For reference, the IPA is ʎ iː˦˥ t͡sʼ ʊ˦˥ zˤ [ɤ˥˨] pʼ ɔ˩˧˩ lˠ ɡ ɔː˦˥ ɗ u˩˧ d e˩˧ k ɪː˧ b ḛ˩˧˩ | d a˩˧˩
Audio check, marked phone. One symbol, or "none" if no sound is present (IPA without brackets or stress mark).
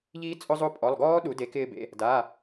o˥˨